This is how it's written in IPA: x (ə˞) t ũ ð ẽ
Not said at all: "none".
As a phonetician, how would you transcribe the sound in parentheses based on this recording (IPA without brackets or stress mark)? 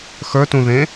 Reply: ə˞